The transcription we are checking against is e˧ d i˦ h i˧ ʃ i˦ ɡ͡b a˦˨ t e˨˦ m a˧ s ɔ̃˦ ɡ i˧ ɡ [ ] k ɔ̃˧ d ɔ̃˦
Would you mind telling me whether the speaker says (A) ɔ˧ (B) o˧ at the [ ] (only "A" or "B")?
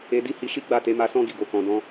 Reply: B